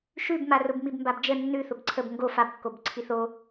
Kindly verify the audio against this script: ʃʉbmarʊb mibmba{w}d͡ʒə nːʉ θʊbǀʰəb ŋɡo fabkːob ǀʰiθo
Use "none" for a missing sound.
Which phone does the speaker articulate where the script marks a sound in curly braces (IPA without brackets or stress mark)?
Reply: b